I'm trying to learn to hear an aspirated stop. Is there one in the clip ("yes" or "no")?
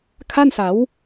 yes